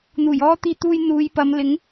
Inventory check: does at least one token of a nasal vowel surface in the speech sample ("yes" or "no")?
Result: no